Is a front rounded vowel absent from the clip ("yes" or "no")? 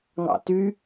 no